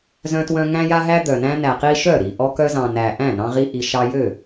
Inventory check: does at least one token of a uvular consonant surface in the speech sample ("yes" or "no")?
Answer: yes